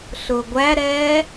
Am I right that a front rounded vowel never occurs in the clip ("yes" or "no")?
yes